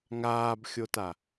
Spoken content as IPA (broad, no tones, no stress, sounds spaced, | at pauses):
ŋ aː b xʲ o t a